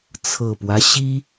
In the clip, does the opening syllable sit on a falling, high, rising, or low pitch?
low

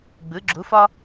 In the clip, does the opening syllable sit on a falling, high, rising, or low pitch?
rising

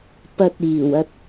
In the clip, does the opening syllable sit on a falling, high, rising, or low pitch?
low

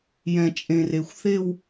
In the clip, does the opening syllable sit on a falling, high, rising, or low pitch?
low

